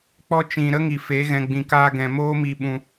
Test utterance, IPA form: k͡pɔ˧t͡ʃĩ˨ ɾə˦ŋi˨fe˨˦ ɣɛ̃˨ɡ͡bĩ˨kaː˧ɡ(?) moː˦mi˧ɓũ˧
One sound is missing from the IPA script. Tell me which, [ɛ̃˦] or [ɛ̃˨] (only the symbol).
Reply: ɛ̃˨